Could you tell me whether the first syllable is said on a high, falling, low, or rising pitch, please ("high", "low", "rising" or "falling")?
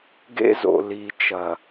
high